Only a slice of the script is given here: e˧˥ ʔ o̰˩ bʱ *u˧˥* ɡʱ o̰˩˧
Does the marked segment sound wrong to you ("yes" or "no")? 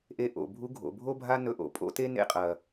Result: no